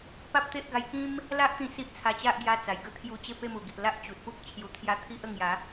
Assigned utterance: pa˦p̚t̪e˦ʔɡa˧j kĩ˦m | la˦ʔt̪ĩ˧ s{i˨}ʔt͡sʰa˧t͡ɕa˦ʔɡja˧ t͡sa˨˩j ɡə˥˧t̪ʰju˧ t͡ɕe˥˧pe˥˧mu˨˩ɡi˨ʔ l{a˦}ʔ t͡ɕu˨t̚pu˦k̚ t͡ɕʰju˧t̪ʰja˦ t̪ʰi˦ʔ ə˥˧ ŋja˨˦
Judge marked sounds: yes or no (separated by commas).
no, yes